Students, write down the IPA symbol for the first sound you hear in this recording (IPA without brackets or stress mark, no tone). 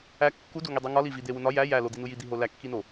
æ